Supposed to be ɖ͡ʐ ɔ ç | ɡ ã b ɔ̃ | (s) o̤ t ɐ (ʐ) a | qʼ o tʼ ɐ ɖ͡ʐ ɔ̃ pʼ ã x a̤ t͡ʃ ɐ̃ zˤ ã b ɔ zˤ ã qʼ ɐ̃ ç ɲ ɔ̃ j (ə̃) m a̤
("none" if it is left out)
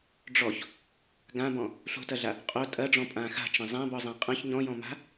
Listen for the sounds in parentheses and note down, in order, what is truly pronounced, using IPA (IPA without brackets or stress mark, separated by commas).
ɬ, ɮ, ɔ̃